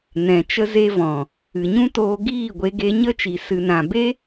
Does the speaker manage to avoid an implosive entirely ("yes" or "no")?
yes